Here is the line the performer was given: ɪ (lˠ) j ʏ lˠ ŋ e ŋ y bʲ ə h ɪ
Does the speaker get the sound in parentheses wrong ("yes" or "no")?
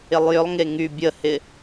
no